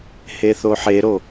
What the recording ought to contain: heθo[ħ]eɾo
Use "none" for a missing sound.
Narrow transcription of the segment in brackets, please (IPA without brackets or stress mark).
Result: ħ